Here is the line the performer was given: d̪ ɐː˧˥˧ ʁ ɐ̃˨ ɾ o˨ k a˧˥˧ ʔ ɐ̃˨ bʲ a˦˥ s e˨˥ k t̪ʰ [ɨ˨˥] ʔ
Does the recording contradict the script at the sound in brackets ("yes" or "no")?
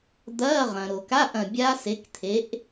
yes